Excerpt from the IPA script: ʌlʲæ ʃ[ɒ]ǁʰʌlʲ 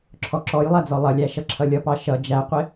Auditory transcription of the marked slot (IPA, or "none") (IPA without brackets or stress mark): ʌ